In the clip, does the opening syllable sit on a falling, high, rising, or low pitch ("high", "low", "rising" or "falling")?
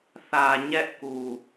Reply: low